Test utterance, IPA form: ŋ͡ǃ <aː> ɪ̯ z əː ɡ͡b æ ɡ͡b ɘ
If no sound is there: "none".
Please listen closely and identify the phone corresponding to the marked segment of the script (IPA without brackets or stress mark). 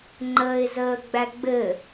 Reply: əː